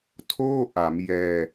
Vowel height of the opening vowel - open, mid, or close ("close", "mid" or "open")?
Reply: mid